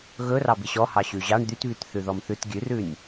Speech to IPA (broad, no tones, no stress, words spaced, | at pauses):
ɣɵ rɑbiɕɔ hɑɕʉʑɑɳ d̪ytβyt θʉðɔmθʉt ɡʲʉrʉnʲ